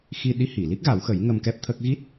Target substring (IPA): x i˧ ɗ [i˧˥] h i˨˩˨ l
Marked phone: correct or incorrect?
correct